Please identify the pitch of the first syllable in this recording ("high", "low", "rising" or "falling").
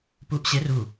rising